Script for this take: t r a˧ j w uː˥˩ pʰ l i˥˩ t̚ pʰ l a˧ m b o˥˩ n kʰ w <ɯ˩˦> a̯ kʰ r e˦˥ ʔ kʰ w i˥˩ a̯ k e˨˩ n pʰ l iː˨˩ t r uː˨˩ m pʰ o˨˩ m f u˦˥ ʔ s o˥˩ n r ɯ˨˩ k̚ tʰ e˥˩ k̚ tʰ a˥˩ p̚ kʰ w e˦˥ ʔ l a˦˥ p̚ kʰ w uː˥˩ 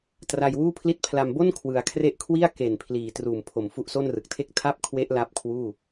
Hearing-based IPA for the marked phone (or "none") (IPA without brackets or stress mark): ɯ˩˦